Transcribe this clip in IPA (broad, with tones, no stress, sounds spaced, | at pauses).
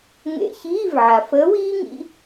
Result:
ŋ ḛ˧˥˧ ç iː˧˥˧ v ʕ a˩ f əː˨˥ w iː˥ ŋ ḭ˧˥˧